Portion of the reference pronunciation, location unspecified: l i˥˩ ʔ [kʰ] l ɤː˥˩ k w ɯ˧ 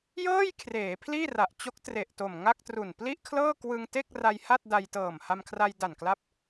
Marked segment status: correct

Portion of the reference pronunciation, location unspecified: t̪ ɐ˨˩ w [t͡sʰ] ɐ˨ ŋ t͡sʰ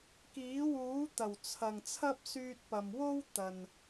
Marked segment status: correct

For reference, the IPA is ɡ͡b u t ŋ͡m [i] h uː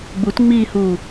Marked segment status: incorrect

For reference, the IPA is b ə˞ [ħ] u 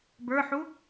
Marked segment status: correct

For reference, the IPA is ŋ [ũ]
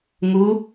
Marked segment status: incorrect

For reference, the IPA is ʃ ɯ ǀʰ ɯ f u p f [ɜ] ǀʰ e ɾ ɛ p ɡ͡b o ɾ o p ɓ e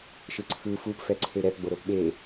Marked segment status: incorrect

